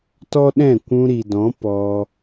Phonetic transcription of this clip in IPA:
t ɔ˦ ɗ ɛ̃˦˨ kʷ ũ˧ ɾ i˨ d ɔ̃˨˦ p ɔ˧

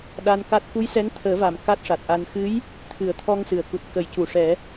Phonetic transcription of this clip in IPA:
ɗ a˧ n k a˦˥ t̚ k u˧˥ j s ɛ˧˥ ŋ t̪ʰ əː˨˩˦ v a˨˩ m k a˦˥ t̚ ʂ a˨˩ t̚ ʔ a˧ n x ɨ˧˥ j | t̪ʰ ɨ˨˩˦ ə̯ t̪ʰ ɔ˧ ŋ s ɨ˨˩ ə̯ k u˨˩ t̚ k ə˨˩˦ j c u˨˩˨ ʂ ɛ˨˩˦

